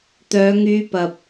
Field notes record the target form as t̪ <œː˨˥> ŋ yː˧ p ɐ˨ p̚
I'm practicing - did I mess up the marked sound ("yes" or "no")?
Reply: yes